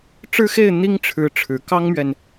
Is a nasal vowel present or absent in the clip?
absent